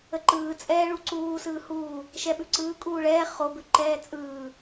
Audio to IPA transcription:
əǃɯː t͡sʼɛːɭuǀuː sɯːhuː | ʃɛɓʉǀɯː kʼuːɭɛː χobʉ ǃɛːt͡sʼɯː

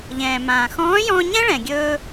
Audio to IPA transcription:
ʎɛ̃ː˩ mãː˩xɔ̃ː˧˥jɔ̃ː˧ ɲɛ̃˥ ɭɛ̃˩ɡʲɵː˧

